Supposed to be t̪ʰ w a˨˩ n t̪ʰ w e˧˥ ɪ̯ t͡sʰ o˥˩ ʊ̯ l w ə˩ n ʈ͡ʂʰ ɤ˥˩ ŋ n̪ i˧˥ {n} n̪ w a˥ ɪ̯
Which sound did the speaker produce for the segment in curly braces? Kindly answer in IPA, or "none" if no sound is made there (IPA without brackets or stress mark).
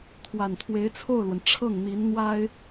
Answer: n